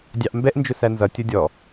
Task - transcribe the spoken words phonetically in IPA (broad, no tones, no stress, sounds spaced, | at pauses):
dʲ ɑ ʔ m b ɛ ʔ n d͡ʒ ʊ s æ n z ʌ tʲ ʌ dʲ ɔ